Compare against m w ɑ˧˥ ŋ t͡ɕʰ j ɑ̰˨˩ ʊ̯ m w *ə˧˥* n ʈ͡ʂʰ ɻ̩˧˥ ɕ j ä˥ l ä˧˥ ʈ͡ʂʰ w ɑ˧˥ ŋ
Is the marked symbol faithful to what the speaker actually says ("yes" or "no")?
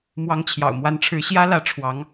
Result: no